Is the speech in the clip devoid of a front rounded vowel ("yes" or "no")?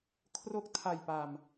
yes